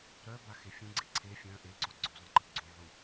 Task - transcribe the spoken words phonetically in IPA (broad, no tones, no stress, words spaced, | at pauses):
ɾœ baxefʲũɡ͡ǀe ǀʰe fʲœ̃ ʔeǀo ɡ͡ǀøzˤĩǃi ɡ͡ǀũʕu